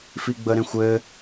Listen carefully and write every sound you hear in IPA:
f i ɡ͡b ə ɾ ẽ xʷ ɘ

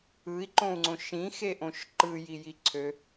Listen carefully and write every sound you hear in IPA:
ɯ i̯ ǃ õ u̯ ŋ͡ǀ õ ʃ ĩ x e ʔ õ ʃ ǃ ɯ j i j i ǀʰ ø

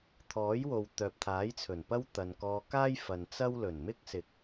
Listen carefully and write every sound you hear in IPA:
t̪ʰ ɔː˨˥ j w o˨ w t̪ œː˨ p̚ t̪ʰ aː˨˥ j t͡sʰ ɵ˨˩ n p ɐ˥ w t̪ ɐ˨ n k ɔː˧ k aː˥ j f ɐ˨ n t͡s ɐ˥ w l ɵ˨˩ n m ɪ˥ k̚ s ɪ˨ k̚

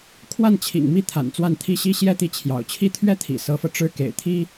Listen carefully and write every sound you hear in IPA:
kʰ w a˥˩ n t͡ɕʰ ḭ˨˩ ŋ m i˥˩ t̪ʰ a̰˨˩ n t͡s w a˥˩ n t̪ʰ i˥ ɕ i˥ ɕ j ɛ˥ t̪ i˧˥ t͡ɕʰ j ɑ̰˨˩ ʊ̯ t͡ɕʰ i˥˩ t̪ʰ ɥ ɛ˥ t̪ʰ ḭ˨˩ s ɤ˧˥ f ɤ˧ ʈ͡ʂ ɻ̩˥˩ k ḛ˨˩ ɪ̯ t̪ʰ i˥

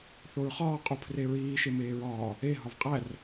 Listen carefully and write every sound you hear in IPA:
θ o ɹ χ ɒː qʼ u pʰ r e ɹ iː ʃ e m eː ɹ ɒː | e ɦ ɒ v qʼ æ r

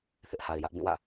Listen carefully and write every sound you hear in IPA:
θ ɪ˦ ʔ h a˨ ɪ̯ j ä˦ ʔ b ĩ˦˨ w ä̰˦˨

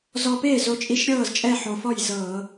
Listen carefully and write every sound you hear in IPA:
z ɔ˧ p eː˥˩ z o˨˥ t͡ʃʼ i˧ ʃ ɾʲ ɤː˥˩ z t͡ʃʼ ɛ˥˩ ħ o˨˩ f ɔ˥˩ j z ɤː˧˩˧

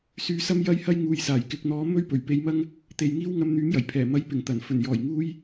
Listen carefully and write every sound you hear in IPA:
s yː˧ s ɐ˥ m j ɐ˥ j h ɐ˥ j ŋ uː˨ j s aː˨˩ j k ɪ˨ k̚ n̪ ɔː˨˧ m ɵ˥ ɥ p ɵ˨˩ ɥ p e˧ j m ɐ˥ ŋ | t̪ e˨ j ŋ iː˥ w ŋ ɐ˧ m n̪ yː˨˥ m j ɐ˨˩ j pʰ ɛː˨˩ m ɐ˨˥ j p ɪ˨˩ ŋ t̪ ɐ˨˩ n f ɵ˨˩ n j ɔː˨˩ j ŋ uː˧ j

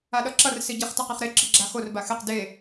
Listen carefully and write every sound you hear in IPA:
a ɗ ʌ ǁ ʌ r s i ɟ i χ t ʌ q e χ ɾ e ǁ ɯ ɡ͡ǁ a x o r b a x e q d e

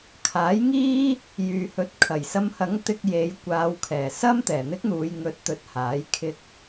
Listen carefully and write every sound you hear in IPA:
kʰ aː˨˥ j ŋ iː˥ | j yː˨ h ɵ˨ t̚ kʰ ɐ˨˩ j s ɐ˧ m h ɐ˨˥ ŋ t̪ ɪ˧ k̚ j e˨˧ j kʷ aː˨˧ w kʰ ɛː˨˩ s ɐ˥ m t̪ ɛː˨˩ n̪ ɪ˥ k̚ n̪ uː˨˧ j ŋ ɵ˨˥ t̚ t̪ ɵ˨˥ t̚ h aː˨˥ j kʰ ɪ˧ k̚

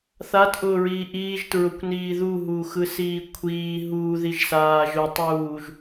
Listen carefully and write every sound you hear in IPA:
θ a t ʔ ʊː ɹ iː ʔ iː ʒ t ɹ ʊ kʷ n iː ð u ɦ uː x ɯ s iː kʷʰ iː ɦ uː ð i ʒ s aː ʒ ʊ tˤ uː ʒ

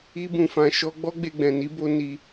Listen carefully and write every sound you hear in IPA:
i˦ b ũ˧ f ã˧ ʃ ɔ˦ ɡ͡b ɔ˦ ɡ͡b e˧ ɡ͡b ɛ̃˨ n i˨˦ b o˦ n i˧

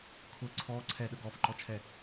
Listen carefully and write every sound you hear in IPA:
kʰ ʊ ǀʰ ɔ ǀʰ ɛ ɗ ə ɡ ɔ f ǃ ɔ t͡ʃʰ ɛ

